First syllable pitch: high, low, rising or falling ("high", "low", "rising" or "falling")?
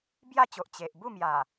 falling